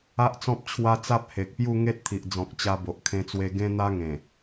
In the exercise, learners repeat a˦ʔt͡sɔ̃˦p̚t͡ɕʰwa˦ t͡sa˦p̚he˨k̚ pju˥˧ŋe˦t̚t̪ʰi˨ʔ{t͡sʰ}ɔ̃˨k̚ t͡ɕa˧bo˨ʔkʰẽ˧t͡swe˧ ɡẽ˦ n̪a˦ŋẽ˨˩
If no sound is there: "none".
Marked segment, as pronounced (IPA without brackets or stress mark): d͡z